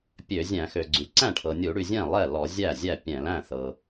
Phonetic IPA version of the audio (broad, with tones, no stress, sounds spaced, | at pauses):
pʲ ø˧˩˧ zʲ æ̃˧˩˧ x ø˩ ɡ͡ǀ y˩ ǀ æ̃˥˩ ʈʰ ɤ˩ nʲ u˧˩˧ ɽ y˩ zʲ ɛ̃˥˩ lˠ ɛ˥˩ l ɔ˧˩˧ zʲ æ˥˩ zʲ æ˥˩ pʲ ɛ̃˧˩˧ l æ̃˥˩ θ ɤ˩